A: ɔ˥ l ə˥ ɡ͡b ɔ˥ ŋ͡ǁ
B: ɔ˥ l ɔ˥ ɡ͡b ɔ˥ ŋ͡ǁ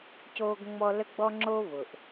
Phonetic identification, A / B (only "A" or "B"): A